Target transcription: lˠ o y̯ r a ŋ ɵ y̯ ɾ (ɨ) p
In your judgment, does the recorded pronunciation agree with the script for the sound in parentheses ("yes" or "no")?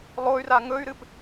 yes